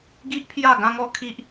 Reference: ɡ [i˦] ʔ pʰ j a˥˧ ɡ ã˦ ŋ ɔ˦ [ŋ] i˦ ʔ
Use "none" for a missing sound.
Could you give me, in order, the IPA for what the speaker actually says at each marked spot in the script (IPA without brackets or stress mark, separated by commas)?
i˦, kʰ